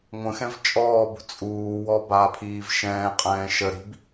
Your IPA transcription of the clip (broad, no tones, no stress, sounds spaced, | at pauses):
ŋʷ ə̃ x ɛ̃ v t͡ʃʼ ɔː b ṳ t͡sʼ uː w ɔ b aː pʰ iː v ʃ ɛ̃ː qʼ ɛ̃ː ʃ ə ɾ i̤ b